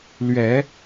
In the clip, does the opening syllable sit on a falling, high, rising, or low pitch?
rising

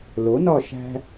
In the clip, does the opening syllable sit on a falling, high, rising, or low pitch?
rising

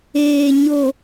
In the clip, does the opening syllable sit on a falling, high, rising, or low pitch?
low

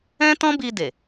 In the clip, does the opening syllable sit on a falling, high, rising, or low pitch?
high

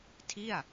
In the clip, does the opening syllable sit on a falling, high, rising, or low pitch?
falling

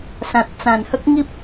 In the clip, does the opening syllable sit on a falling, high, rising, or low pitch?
low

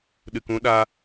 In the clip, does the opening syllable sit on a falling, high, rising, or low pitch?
low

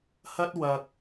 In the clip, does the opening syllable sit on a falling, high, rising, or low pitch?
high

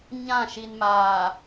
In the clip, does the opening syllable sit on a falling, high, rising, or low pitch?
falling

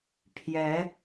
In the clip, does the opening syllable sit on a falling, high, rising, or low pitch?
rising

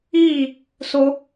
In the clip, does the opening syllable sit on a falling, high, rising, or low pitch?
falling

